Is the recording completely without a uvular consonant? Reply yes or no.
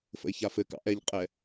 no